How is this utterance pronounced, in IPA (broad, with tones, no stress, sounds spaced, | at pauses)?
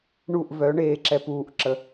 ɳ u˦˨ ʔ v œ˨˦ ɳ eː˧ ǁ ɛ˨ p uː˨ ʔ ǁ ə˨